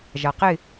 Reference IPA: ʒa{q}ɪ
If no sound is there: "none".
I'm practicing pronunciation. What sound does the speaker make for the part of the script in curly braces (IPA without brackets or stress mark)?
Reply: q